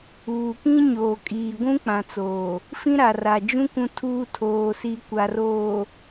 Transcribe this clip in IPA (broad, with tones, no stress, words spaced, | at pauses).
uː˨kĩ˦ɲoː˨kʼiː˨ ɡʷũ˦k͡pã˨t͡soː˨ | fĩ˦ɾa˨ra˨d͡ʒũ˦ kũ˦tʰuː˦ tʰoː˨si˨ kʷa˨roː˨